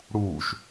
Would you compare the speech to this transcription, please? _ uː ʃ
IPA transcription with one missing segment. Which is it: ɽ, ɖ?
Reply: ɽ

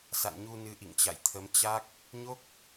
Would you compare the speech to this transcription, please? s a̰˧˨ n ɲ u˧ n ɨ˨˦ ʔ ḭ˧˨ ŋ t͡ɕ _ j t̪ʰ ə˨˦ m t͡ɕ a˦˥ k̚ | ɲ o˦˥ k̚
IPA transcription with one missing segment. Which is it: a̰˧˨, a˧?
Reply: a̰˧˨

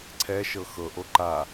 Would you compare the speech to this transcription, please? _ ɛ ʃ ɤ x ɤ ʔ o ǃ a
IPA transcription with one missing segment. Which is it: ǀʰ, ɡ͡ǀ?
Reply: ǀʰ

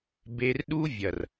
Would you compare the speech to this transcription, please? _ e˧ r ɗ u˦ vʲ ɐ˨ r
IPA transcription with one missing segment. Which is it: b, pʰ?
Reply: b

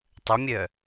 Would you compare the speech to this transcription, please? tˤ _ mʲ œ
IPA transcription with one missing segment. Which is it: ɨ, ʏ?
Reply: ʏ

